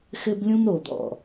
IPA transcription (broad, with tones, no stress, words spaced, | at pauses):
xɘ˦blʲũ˦m ɾo˨d̪ɔ̰˨